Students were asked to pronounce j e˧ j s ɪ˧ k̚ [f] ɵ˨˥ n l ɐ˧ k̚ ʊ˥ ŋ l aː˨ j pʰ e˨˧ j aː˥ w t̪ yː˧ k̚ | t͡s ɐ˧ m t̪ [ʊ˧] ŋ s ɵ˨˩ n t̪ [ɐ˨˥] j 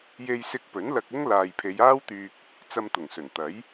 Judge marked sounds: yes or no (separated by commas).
no, no, yes